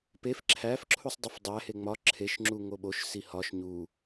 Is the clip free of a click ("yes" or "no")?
no